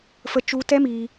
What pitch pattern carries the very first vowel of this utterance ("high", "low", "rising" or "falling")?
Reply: high